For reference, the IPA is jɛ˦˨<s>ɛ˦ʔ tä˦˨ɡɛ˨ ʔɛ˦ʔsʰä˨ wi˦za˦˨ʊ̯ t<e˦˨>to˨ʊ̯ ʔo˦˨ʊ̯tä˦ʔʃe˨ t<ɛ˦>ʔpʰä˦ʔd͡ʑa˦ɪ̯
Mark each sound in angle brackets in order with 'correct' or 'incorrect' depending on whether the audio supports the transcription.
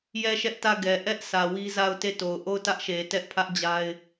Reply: incorrect: ʃ, correct, correct

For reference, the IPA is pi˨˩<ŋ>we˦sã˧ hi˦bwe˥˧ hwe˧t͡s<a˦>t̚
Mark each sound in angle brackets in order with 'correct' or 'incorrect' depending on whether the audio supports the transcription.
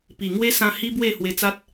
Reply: correct, correct

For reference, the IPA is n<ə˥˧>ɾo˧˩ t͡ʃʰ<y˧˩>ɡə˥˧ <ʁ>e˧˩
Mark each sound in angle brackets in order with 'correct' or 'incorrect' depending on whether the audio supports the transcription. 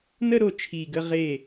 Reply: correct, incorrect: i˧˩, correct

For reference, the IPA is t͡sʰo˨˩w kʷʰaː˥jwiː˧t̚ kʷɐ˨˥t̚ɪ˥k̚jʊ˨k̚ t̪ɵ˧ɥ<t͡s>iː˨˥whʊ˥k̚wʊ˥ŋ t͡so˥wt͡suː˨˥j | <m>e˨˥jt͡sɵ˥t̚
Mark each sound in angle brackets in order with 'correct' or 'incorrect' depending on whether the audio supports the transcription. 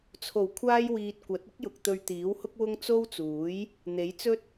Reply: incorrect: t̪, incorrect: n̪

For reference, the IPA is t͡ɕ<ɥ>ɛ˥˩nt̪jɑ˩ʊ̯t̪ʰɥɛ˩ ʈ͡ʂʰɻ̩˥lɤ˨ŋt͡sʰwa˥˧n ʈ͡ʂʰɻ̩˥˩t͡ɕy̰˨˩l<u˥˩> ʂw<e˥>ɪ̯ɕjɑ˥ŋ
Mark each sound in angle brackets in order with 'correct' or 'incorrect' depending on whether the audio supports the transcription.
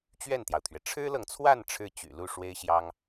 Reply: correct, correct, correct

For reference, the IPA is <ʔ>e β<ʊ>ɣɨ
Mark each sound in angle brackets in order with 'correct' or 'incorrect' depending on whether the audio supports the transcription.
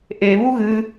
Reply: correct, incorrect: u

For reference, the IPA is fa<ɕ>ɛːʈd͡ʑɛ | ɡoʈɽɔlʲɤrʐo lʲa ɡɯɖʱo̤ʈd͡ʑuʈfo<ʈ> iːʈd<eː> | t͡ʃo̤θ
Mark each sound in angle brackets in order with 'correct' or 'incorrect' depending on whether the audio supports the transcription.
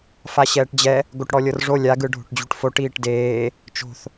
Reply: correct, correct, correct

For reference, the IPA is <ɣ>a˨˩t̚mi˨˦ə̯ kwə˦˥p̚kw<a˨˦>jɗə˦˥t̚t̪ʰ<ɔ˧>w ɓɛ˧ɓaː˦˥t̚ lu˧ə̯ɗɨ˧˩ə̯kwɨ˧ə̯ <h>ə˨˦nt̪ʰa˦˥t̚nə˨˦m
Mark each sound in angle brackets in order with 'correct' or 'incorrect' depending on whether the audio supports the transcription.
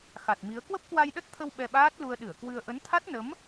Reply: incorrect: x, incorrect: a˧, incorrect: ə˧, incorrect: ʔ

